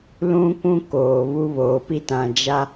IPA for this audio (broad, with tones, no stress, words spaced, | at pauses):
lũ˦kʷũ˦koː˨ βu˦βoː˨ pi˦tã˨ d͡ʒa˦